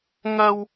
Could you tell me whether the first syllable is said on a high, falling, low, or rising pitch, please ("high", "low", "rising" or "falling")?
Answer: high